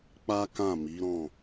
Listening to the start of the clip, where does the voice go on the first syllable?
high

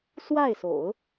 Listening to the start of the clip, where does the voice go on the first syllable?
falling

